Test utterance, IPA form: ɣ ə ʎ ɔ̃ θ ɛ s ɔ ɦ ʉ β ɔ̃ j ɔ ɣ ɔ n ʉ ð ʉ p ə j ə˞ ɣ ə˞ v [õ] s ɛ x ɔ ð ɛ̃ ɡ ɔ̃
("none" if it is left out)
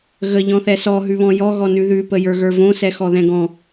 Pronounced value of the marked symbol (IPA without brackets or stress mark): õ